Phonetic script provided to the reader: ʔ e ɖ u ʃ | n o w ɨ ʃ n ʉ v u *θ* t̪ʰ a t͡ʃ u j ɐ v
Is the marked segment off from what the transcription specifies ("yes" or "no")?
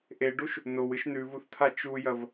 no